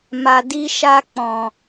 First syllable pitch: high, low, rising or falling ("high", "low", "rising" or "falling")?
low